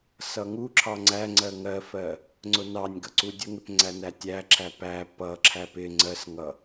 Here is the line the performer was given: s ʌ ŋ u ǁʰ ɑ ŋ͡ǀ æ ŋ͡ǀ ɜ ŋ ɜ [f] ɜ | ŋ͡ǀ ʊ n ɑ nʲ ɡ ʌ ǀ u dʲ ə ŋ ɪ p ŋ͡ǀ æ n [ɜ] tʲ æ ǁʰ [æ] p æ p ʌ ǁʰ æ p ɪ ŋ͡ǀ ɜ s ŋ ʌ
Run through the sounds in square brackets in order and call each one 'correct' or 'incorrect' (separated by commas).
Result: correct, incorrect, correct